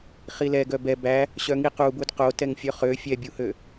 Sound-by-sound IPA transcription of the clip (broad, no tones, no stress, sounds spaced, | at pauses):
χ i l ɛ ɡ œ b ɛ b æ | ɕ œ ŋ i q u b u d q o t ɛ ŋ fʲ œ χ ø fʲ ɛ bʲ u h ø